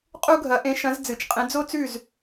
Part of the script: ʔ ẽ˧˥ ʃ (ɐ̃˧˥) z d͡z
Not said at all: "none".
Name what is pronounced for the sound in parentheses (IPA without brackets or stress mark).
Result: ɐ̃˧˥